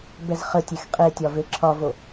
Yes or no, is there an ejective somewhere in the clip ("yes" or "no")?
yes